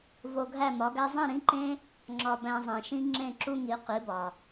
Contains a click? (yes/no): yes